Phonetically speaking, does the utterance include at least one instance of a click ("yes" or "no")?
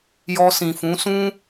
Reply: no